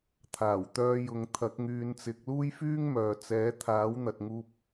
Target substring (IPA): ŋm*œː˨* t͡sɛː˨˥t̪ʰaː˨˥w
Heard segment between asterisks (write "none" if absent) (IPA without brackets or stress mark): œː˨